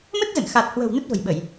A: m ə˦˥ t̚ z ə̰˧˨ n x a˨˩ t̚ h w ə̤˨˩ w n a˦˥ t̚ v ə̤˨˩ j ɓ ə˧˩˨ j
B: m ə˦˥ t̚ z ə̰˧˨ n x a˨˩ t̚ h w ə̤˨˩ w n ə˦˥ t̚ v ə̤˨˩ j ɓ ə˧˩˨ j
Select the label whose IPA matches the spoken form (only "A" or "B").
B